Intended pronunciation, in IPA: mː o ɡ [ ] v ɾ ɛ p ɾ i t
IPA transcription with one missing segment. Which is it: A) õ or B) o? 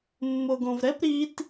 A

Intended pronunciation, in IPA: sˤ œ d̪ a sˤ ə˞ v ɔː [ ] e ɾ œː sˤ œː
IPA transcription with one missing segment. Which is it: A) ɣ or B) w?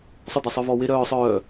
B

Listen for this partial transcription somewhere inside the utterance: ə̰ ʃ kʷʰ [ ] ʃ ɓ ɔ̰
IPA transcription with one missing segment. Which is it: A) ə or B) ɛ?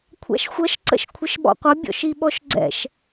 A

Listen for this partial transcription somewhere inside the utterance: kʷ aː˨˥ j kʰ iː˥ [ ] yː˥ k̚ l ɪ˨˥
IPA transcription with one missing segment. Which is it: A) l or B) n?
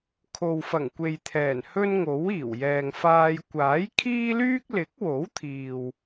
A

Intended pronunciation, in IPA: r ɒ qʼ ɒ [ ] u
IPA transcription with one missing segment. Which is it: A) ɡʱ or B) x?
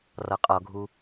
A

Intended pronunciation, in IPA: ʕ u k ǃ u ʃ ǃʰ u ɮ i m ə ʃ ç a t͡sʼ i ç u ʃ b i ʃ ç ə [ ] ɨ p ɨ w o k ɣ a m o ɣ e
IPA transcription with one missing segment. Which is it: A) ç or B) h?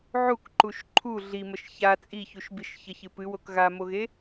A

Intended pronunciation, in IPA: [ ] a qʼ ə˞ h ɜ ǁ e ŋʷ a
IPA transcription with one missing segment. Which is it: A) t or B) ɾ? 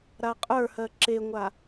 B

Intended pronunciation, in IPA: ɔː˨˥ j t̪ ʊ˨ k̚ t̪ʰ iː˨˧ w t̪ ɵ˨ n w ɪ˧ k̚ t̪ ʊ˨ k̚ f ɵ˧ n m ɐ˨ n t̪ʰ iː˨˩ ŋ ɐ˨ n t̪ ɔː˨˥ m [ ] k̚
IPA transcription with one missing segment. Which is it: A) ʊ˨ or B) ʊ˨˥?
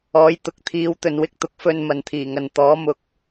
B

